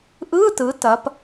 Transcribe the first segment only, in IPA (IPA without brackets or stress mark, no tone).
ʔ